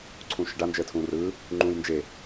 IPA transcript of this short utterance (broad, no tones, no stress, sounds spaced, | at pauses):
ǀʰ ũ ʃ ə ɖ a n d͡ʒ əː tʰ ũː r ɯː | ŋ͡ǃ ũː j n d͡ʒ e